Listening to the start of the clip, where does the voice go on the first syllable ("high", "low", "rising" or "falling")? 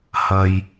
low